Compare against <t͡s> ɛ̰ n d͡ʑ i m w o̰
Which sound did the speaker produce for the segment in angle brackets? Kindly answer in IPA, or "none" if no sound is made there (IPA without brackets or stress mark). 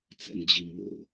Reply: t͡s